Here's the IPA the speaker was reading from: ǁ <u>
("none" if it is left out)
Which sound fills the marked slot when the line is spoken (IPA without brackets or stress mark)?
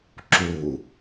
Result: u